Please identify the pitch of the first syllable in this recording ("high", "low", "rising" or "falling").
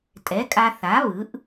rising